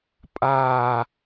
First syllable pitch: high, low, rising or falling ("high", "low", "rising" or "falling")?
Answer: low